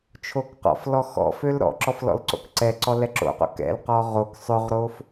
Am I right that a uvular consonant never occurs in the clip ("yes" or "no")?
no